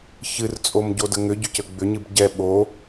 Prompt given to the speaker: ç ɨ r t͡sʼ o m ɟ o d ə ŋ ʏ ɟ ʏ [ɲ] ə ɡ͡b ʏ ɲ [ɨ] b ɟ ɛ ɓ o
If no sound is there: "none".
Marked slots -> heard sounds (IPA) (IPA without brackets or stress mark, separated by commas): c, ɨ